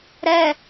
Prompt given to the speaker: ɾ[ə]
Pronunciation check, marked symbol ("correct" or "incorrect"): incorrect